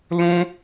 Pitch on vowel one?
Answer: high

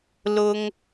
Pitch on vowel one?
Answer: low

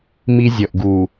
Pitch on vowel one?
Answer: high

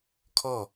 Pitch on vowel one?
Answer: falling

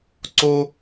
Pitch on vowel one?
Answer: high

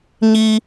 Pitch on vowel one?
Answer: low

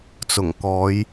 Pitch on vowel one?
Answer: low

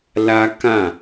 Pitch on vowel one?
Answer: high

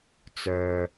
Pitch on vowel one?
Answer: low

